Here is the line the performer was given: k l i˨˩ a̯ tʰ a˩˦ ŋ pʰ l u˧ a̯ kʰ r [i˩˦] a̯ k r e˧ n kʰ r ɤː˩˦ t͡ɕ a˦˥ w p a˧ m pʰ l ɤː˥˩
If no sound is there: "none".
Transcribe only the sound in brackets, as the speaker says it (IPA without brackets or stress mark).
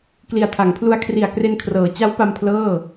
i˨˩